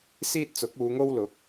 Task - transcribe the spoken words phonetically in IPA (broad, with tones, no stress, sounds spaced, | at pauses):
s iː˥ t̚ t͡s ʊ˨˥ k̚ uː˨˧ ŋ o˥ w l ʊ˨˥ k̚